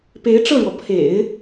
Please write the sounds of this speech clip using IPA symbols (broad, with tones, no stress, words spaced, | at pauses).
pe˧˥ɪ̯ʈ͡ʂɤ˥˩ɻwɔ˩ pʰḛ˨˩˦ɪ̯